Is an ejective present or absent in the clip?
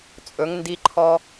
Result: present